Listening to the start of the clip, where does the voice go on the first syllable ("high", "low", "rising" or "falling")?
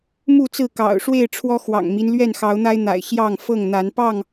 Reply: falling